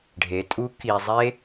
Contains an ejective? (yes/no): yes